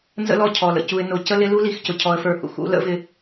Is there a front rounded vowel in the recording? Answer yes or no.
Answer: no